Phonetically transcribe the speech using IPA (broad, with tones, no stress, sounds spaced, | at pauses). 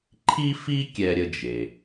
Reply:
ǃʰ i˥ f i˥ kʲ ɛ˥ ɾʲ ə˥ d͡ʒ e˩